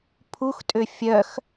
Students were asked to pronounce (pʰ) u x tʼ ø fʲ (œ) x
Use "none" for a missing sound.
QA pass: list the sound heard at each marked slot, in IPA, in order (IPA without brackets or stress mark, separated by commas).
pʰ, œ